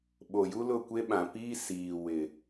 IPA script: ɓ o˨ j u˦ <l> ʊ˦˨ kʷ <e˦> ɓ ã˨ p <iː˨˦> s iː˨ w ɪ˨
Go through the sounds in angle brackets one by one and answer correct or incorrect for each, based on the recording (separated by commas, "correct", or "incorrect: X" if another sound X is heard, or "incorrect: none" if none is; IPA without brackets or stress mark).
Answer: correct, correct, incorrect: iː˦